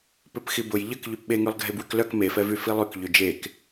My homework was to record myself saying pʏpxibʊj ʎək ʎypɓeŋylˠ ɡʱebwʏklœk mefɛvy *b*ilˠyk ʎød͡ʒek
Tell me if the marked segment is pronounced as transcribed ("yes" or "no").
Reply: no